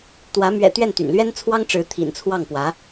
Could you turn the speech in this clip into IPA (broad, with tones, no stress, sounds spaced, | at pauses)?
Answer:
t̪ w ä˧˥ m ɥ ɛ̰˨˩ t̪ ɥ ɛ˥˩ n t̪ y̰˨˩ n l ɥ ɛ˥ n t͡sʰ w ɑ˥ ŋ ʈ͡ʂ ɻ̩˧˥ t̪ʰ ḭ˨˩ n t͡sʰ w ɑ˥˩ ŋ p w ä˧˥